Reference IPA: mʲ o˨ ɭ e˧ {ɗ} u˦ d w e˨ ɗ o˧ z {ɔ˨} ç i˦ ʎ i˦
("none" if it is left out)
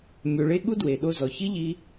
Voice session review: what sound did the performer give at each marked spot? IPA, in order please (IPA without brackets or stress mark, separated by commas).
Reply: ɠ, ɔ˨